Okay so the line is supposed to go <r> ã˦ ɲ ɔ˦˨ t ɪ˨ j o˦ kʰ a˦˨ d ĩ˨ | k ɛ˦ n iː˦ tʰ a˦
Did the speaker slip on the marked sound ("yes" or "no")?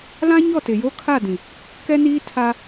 yes